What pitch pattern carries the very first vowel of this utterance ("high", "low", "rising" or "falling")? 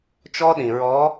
high